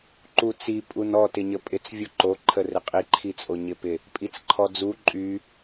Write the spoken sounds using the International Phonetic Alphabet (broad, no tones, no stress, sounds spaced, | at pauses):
ǃ u t͡s i pʼ u n ɔ t ɪ ɲ ə pʼ ɪ t͡s vʲ o ǃ o ǃʰ ə r ɪ qʼ i ǃʰ i t͡sʼ o ɲ ɪ p ɪ | pʼ i t͡s ǃʰ ɔ d͡z u ǃʼ y